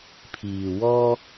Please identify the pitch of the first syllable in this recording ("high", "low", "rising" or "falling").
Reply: low